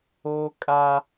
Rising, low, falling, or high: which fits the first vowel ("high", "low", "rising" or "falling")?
high